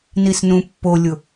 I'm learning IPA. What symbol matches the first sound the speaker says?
n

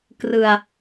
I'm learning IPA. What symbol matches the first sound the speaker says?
k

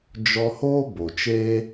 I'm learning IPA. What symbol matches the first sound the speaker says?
d͡ʒ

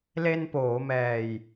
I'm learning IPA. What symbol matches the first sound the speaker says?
l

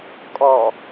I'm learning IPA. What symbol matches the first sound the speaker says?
kʼ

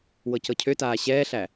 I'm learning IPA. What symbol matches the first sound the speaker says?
w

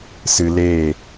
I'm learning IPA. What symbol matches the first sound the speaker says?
s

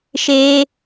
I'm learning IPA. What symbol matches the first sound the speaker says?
ʃ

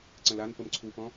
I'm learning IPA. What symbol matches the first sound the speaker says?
ǀ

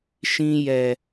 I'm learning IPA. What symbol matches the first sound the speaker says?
ʃ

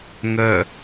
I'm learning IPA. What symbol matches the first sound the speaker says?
ŋ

